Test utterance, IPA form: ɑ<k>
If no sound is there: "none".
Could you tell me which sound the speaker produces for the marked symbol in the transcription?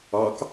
k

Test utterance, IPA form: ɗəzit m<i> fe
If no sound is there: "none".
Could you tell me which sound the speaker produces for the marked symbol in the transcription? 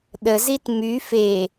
y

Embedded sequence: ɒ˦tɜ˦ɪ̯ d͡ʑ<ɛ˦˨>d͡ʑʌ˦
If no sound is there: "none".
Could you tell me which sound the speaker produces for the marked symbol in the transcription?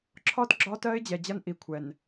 ɛ˨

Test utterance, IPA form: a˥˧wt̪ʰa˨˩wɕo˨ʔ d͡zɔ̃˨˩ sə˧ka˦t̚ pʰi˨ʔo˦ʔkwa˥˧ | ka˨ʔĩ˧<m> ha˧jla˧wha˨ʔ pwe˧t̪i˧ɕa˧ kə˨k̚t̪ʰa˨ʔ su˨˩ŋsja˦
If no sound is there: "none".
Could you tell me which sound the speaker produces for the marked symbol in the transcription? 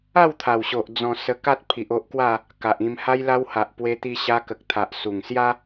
m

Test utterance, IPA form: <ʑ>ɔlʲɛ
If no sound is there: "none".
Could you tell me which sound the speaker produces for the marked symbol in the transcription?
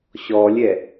ɕ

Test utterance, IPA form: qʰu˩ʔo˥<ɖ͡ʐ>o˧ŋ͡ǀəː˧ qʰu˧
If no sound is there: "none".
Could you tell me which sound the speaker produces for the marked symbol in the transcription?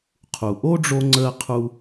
ɖ͡ʐ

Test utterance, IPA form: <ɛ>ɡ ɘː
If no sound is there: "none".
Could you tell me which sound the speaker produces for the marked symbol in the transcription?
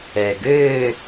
ɛ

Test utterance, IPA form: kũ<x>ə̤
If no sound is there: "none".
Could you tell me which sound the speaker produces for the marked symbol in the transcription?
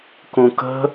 k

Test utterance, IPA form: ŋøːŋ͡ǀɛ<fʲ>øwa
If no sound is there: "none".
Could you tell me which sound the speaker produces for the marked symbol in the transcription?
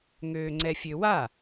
fʲ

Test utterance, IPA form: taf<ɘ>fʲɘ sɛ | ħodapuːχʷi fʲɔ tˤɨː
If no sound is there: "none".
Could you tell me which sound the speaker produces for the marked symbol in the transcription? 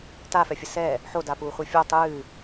ɛ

